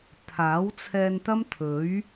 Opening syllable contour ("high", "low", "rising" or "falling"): rising